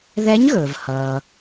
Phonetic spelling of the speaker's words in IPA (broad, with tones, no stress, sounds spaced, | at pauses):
ð ɛ˧˥ ɲ ɣ ɵː˩ v h ʌː˩